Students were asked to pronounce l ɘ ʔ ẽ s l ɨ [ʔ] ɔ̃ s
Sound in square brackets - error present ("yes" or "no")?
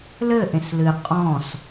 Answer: yes